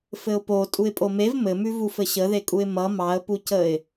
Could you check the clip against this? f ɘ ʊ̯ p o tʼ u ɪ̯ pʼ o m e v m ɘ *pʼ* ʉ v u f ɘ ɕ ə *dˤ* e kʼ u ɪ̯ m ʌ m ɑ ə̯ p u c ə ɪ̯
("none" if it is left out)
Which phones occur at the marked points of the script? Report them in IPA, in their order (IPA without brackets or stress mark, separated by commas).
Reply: m, ð